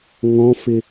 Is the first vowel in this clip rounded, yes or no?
yes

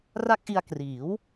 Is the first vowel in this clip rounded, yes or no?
no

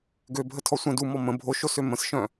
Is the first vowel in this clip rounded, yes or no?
yes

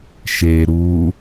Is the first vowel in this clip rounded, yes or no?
no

